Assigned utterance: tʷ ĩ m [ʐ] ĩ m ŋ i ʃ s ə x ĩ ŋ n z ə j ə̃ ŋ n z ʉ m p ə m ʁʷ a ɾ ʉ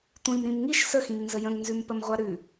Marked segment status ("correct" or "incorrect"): incorrect